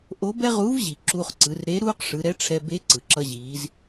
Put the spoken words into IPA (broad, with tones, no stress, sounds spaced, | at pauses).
ʔ o˧˥ b ɛ˥ ʁ uː˧˥ v ʑ i˩ ǁ uː˧ χ ǀ ɯ˩˧ r ɾ e˧˥ ɾ uː˥ q ʂ ɯ˩˧ ɾ ɛ˧˥ ʈ͡ʂʰ ɛ˧ b e˧˥ ǀ ɯ˩ ǁ ʌ˧ ʑ iː˩˧ z